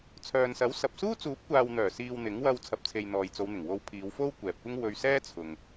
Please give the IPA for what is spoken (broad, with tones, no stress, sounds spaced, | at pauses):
t͡sʰ œː˨ n s ɐ˨˥ w s ɐ˨ p̚ s uː˥ t͡s uː˨˥ p̚ kʷ aː˨ w n̪ œː˨˩ s iː˨ w n̪ ɪ˨˥ ŋ w ɐ˧ w t͡sʰ ɐ˨ p̚ t͡sʰ e˨ j n̪ ɔː˨ j t͡s o˨˧ w n̪ ɪ˨˩ ŋ w o˧ w pʰ iː˨˧ w f o˥ w kʷ ɛː˨ p̚ kʷ ɪ˥ ŋ w ɵ˧ ɥ s ɛː˥ t͡sʰ ʊ˨ ŋ